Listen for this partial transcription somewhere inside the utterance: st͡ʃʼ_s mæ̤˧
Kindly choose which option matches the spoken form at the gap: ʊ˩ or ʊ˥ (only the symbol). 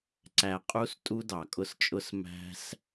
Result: ʊ˥